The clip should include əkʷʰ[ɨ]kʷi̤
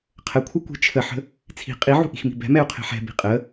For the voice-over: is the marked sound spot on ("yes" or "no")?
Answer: yes